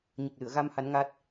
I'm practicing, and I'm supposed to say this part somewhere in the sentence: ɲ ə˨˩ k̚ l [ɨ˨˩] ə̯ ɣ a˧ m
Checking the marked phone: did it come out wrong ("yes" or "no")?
yes